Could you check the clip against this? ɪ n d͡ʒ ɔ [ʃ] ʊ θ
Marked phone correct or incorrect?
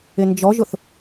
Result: incorrect